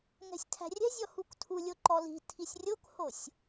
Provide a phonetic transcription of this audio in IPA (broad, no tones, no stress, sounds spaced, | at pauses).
ŋ ɛ̤ sʲ tʰ æ̤ rʲ ɛ̤ zʲ ɔ h u k tʰ u lʲ o ǃ ɔ l i̤ tʰ i sʲ rʲ o k h o sʲ